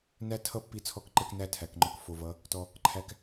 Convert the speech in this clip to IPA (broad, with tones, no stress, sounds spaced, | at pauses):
n æ˦ tʰ ʌ˦ pː i˧ t͡sʰ ɔ˧ k ǃ ɛ˧ k n æ˦˨ tʰ æ˨ k ŋ͡ǃ ɔ˧ k f o˨ v ʌ˨˦ | t ɔ˧ | ǃʰ æ˧ k